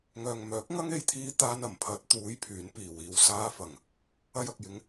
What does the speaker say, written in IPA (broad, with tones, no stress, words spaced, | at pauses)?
ŋœː˨ŋ mœː˨˥k̚ŋɐ˥ŋe˧jt̪ʰiː˧ t̪aː˧nɐ˨˩m pʰɐ˨˥t̚ t̪uː˨˥j pʰyː˨˥npiː˨wiː˧w saː˧fɐ˨˩ŋ | ɐ˧jɐ˨k̚jɪ˨˥ŋ